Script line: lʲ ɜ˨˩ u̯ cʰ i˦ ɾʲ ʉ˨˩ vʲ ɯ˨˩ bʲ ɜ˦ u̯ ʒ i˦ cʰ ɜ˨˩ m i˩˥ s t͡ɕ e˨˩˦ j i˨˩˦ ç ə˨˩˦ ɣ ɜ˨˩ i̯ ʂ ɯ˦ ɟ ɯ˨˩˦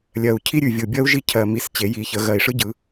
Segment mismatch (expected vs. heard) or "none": none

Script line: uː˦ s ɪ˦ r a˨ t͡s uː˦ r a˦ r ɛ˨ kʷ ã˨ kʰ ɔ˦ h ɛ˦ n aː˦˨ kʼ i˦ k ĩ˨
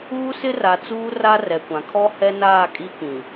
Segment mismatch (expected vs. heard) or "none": none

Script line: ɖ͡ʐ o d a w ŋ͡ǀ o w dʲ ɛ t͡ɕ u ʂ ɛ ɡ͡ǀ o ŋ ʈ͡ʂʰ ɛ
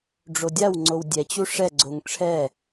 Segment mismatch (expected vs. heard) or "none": d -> dʲ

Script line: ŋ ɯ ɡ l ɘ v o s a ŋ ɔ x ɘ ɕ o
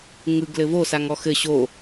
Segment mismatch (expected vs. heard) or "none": none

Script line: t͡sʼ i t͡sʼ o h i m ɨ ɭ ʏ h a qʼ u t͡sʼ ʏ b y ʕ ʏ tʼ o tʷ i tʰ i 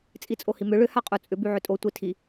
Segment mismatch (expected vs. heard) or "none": ɨ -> ʏ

